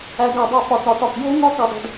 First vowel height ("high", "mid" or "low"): low